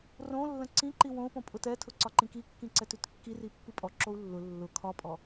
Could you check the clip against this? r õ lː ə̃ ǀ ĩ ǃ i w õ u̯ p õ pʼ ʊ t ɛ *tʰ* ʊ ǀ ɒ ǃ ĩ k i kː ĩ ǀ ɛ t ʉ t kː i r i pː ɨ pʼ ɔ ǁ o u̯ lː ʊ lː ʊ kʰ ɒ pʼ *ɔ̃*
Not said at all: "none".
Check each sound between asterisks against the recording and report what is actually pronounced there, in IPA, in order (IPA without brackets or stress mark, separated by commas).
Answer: tʰ, ɔ